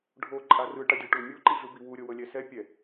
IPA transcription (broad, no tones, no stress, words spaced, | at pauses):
ɖʱo ǃʼarɯ ʈadʲɔʈ umʲo ǃiɮɯbiwu ɾʲɤwɤlʲɛsɛ pʲɛ